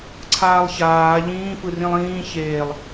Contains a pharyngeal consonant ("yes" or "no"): no